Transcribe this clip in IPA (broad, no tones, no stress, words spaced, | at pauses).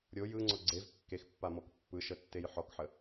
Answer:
ɾʲo jɯŋ͡ǀɔ ɡ͡ǀev kːexpːamɔk pːɯʃətːej ħɔkħə